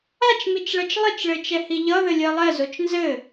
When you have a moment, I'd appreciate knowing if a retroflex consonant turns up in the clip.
yes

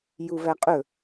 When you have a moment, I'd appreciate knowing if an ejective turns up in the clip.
yes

